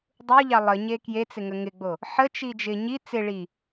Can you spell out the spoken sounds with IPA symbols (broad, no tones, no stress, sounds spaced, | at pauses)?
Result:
dˤ u ʎ ɑ lˠ ə ɲ e k j e t͡s ɪ ŋ ə ŋ ɪ ɡ͡b o | ħ ə t͡ʃ i d͡ʒ ɪ ɲ i t͡s ɪ ɭ i